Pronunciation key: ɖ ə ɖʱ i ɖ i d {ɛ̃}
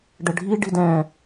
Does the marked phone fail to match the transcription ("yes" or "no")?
no